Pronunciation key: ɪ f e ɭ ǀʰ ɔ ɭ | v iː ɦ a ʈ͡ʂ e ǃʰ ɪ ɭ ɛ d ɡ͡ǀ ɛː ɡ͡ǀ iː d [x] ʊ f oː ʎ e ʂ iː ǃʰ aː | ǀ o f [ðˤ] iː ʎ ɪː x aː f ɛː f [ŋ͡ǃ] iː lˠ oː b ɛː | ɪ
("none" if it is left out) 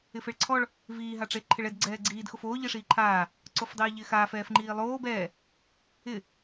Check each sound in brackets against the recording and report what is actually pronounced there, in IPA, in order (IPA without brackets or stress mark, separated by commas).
x, dˤ, ŋ͡ǃ